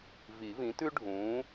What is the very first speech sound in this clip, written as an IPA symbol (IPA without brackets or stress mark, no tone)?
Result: v